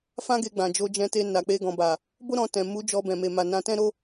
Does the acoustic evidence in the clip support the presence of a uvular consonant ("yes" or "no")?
no